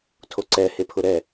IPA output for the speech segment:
tʰ o ǀ ɛ h e pʰ ʊ ɾ ɛ

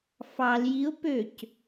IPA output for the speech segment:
f ɑ l j i ʊ̯ p ø c

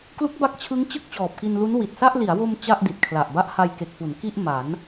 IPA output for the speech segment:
k l u˦˥ k̚ b a˦˥ k̚ t͡ɕʰ ɯ˦˥ ŋ t͡ɕ ɯ˥˩ k̚ t͡ɕ ɔː˨˩ p̚ k i˧ n l u˦˥ n w i˨˩ t̚ s a˥˩ ʔ l i˩˦ a̯ w o˧ m t͡ɕ a˥˩ ʔ d i˨˩ t̚ kʰ l a˨˩ ʔ b a˥˩ ʔ h a˧ j k e˨˩ k̚ f u˩˦ n k i˥˩ ʔ m a˩˦ n

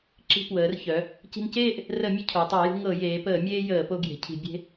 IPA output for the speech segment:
ǁ i̤˧ p w əː˩˧ r ç œ˩˧ | c i̤˧ n c eː˥˧ ʔ | r ə˧˩˧ mʲ ə˧ cʰ o˩˧ tˤ ɤ˧˩˧ j ṳ˧ ŋ ɤ˧˩˧ j eː˩˧ p əː˧˩˧ mʲ eː˧ j əː˧˩˧ p o˧ ɡ j e̤˩˧ cʰ i̤˧˩˧ bʲ e̤˧

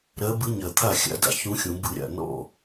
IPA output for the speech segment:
ɾ ɜ˧˥ b ɨ˧˥ ɲ ɜ˨˩ t̪ʰ a˥˨ xʲ a̰˧˥ d a̰˨˩ ç ũ˧˥ xʲ ũ˨˩˦ b ɨ˨˩˦ ɾʲ a̰˨˩ n ɔ̰˥˨

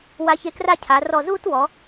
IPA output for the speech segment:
w a˧ ç e˧ k r a˥˧ cʰ a˩˧ r ɔ˧˩ z uː˥ t w ɔ˩˧

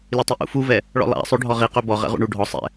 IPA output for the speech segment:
lʲ ø tˤ i ʔ ṵ f u v ɛ | ɭ ɔ̰ lˠ a̰ sˤ ø ɖʱ ɔ ʁ i q ø b ɔ ʁ ɛ̰ ʁ ṵ ɳ u ɖʱ ɔ sˤ ɛ̰

